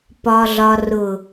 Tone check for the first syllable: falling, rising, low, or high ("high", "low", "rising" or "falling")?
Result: low